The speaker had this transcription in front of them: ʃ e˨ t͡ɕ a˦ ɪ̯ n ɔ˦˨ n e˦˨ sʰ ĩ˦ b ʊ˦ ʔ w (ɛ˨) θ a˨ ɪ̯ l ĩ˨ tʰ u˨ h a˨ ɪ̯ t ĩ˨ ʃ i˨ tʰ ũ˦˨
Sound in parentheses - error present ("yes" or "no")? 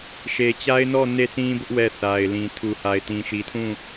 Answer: yes